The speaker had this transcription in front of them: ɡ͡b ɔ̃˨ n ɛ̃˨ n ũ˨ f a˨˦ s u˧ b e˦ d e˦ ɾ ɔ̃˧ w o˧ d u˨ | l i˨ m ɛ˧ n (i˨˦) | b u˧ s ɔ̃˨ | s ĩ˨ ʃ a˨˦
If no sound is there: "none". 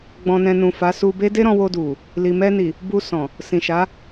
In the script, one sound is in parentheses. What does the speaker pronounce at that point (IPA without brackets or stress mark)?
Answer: i˨